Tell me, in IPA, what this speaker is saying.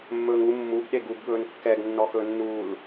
mː ɵː ŋ u mː u ɡ ɗ e ɡ u ɡ ɠ ɵː n kː ɛ ɡ nː ɔ x ɵ nː uː l

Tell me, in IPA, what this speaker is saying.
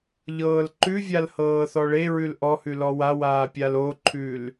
ʎ ɤː l ǃ ʉ vʲ a l h ɤː θ ɔ ɭ e ɹ ʉ l ʔ ɔ h ʉ l ɔ w a w aː pʲ a l o ǃʰ ʉ l

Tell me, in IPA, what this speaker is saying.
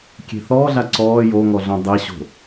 kʲ e̤ θ ɔː ɮ a ǀ ɔː j o ŋ ɔ ɮ õ dˤ e ɕ o̤

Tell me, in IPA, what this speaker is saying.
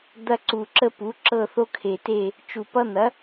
d̪ ɐ˦ ǀ u˨˩ ǁ ə˦ p u˩˥ ǁ ɤ˦˨ θ o˦ kʰ e˨˩ t e˦˨ | t͡ʃ u˨˩ p ʌ˦ n̪ ɐ˩˥

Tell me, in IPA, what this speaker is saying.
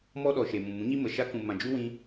m ɔ˦ ɗ ɔ˨ ʃ e˨ m ũ˨ m ũ˨˦ ɲ i˦ m ə˨ ʃ a˧ k ũ˨ m ã˨ d͡ʒ u˦ w ĩ˧

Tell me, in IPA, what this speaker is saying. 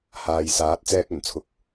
h aː˨ j s aː˨˥ t̚ t͡s ɛː˧ k̚ ɵ˨˩ n t͡sʰ ʊ˨˥ k̚

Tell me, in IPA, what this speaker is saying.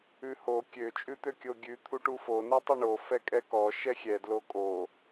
ʉ h o kʲ ø t͡ʃʼ ʉ t̪ ø kʲ o ɡʲ ʉ t̪ʰ u ʈ u f o n ʉ tˤ ɛ ɳ o f ɛ kʼ ɛ k ɔ ʃ ɛ xʲ ɛ d l o kʼ o

